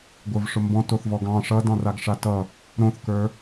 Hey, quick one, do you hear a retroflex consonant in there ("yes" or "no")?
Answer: yes